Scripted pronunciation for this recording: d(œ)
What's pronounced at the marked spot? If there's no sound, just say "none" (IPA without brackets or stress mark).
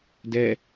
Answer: ɛ